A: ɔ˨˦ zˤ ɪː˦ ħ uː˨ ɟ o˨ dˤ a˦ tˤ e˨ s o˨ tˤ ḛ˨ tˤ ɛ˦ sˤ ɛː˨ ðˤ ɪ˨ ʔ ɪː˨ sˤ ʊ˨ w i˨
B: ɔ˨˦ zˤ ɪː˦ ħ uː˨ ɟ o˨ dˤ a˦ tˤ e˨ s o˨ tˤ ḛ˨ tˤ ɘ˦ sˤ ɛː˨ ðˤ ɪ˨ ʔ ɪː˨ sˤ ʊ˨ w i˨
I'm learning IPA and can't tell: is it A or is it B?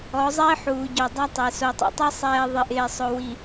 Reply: A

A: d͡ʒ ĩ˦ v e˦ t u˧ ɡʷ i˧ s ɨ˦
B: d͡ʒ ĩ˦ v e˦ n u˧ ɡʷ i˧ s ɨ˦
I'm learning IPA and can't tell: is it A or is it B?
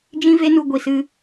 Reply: B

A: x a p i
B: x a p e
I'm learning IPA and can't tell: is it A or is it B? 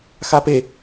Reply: B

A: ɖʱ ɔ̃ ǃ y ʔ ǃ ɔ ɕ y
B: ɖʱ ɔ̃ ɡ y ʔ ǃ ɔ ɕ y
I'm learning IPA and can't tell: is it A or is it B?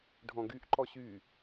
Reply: B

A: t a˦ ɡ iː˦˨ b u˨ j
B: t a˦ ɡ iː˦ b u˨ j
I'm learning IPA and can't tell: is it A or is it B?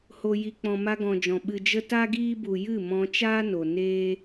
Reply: B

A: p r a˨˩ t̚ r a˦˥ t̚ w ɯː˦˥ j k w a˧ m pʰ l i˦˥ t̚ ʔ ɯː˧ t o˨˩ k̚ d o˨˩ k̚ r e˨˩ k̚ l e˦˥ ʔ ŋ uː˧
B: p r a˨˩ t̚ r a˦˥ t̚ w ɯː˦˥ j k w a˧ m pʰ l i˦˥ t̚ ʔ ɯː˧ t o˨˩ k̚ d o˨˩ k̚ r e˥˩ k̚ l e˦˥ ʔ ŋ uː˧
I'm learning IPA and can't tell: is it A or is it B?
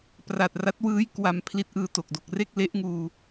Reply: B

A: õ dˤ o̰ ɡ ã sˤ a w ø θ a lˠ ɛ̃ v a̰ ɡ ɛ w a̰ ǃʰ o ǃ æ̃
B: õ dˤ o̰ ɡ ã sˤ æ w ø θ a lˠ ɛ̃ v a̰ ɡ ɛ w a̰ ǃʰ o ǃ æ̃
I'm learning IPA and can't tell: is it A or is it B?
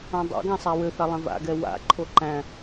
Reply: B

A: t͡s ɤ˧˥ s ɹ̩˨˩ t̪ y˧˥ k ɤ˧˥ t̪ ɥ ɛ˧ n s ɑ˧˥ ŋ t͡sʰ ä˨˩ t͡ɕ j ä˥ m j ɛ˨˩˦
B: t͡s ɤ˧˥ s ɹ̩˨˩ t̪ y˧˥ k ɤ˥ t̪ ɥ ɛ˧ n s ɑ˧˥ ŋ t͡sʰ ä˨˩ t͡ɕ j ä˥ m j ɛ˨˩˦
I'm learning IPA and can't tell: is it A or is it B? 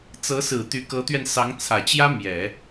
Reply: A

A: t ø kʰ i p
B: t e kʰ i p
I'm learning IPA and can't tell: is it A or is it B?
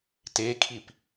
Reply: B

